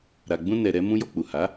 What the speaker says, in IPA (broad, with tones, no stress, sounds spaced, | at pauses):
ɾ a˨ ɡ͡b ũ˧ n ɛ˧ ɾ ɛ˦ m ũ˦ j ɔ˧ k͡p u˨ h a˨˦